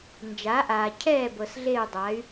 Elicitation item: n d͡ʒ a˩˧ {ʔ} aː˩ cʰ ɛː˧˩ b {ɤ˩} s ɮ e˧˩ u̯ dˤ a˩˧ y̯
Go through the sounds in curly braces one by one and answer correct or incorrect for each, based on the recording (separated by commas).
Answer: correct, correct